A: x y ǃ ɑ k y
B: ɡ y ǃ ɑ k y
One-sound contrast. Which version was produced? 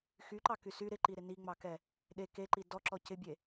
A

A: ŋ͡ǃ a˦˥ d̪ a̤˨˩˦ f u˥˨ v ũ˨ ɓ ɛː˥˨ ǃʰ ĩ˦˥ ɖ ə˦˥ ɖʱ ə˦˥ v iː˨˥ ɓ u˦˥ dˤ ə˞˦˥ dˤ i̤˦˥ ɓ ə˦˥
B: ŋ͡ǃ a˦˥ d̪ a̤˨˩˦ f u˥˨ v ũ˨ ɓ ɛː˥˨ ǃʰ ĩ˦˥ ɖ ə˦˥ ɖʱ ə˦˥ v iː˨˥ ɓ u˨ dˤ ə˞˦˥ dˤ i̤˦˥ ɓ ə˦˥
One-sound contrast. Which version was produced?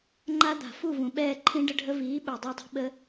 B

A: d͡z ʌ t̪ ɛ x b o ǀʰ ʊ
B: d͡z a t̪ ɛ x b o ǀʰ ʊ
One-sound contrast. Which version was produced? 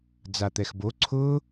B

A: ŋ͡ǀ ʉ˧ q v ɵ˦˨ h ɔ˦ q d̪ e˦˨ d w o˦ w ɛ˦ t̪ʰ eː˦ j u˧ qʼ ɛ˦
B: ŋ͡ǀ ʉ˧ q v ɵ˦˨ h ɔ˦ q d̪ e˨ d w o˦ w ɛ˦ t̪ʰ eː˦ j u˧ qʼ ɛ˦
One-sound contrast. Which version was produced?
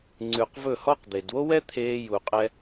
B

